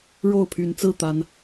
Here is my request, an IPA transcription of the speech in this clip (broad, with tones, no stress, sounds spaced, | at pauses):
ɻ o˥˨ ʊ̯ pʰ y˨˦ n t͡s ɹ̩˥˨ t̪ a˨˦ n